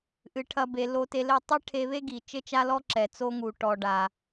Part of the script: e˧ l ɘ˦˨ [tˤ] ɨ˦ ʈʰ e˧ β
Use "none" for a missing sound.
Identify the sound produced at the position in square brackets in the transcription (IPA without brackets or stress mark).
tˤ